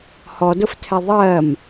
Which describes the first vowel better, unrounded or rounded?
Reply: rounded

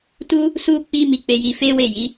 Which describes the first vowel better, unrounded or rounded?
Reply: rounded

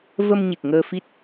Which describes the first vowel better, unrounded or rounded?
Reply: unrounded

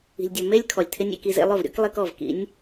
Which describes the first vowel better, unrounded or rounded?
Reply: unrounded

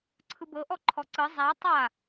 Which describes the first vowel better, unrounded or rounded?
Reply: unrounded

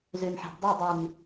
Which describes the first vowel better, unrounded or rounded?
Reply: rounded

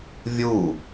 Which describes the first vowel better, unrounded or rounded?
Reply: rounded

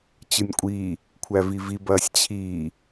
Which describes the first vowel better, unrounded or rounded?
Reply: unrounded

